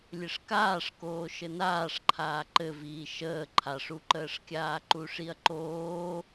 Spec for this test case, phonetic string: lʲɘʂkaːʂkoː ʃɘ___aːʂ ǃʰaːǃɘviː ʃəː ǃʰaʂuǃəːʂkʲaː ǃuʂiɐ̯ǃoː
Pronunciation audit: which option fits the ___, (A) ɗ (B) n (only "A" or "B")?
B